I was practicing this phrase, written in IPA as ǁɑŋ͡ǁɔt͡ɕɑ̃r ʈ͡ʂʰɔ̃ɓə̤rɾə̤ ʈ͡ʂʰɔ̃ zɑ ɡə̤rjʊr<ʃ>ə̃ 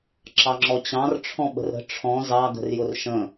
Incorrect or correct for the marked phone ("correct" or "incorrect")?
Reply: correct